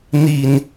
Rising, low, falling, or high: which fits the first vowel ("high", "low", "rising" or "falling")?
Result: low